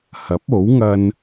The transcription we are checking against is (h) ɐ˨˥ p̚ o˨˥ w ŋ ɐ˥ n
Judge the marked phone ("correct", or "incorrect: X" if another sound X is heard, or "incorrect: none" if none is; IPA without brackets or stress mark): correct